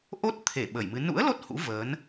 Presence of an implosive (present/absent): present